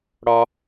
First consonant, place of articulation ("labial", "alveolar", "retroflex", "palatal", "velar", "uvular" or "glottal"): retroflex